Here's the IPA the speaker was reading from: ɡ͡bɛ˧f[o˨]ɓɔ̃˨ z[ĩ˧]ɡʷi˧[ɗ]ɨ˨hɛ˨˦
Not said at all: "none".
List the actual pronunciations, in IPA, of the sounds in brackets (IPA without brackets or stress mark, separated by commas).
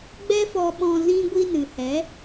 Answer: ɔ˨, ĩ˧, n